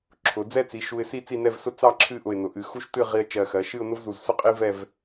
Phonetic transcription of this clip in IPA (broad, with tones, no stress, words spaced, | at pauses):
ǁʰʊ˩˧ d͡zɛ˥t͡si˩˧ ʃu˧ɪ̯si˥˧ t͡si˥˧nɛ˥˧v sʊ˥ t͡sɑ˥˧ ǁʰɨ˥˧ʔʊ˧˩ɪ̯nʊ˩˧ ʔɨ˩˧xu˥ʃ tɨ˥˧ ʁi˧ə̯ t͡ʃɜ˧˩xɜ˩˧ ʃɨ˥˧ʊ̯nʊ˥vzu˧˩zsʊ˥ qʼi˥vɛ˥˧v